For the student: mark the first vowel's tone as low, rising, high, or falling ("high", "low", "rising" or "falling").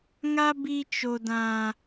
high